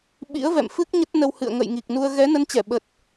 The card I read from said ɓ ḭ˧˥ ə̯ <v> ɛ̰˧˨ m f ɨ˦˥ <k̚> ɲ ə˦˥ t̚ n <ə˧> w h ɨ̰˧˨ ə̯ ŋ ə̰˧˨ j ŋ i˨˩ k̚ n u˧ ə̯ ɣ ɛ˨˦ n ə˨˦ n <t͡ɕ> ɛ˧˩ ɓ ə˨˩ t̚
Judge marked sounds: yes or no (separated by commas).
yes, yes, yes, yes